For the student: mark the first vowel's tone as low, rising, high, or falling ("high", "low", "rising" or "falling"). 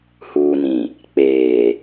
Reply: low